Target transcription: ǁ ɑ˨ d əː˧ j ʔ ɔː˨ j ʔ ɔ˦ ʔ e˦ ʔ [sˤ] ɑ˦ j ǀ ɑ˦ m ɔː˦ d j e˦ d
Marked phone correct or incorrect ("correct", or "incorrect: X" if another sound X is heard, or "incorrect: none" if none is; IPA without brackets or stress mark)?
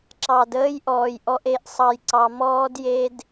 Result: correct